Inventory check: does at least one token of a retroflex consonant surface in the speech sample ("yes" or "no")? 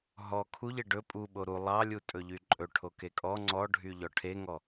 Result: yes